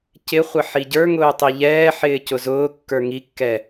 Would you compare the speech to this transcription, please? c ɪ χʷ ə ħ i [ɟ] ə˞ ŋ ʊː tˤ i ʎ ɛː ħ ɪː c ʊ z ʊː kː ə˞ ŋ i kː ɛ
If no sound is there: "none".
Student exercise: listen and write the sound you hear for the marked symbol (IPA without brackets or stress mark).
ɟ